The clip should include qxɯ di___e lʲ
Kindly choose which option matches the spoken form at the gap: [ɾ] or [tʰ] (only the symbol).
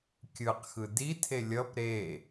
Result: tʰ